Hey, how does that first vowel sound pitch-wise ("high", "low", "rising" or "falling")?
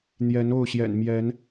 rising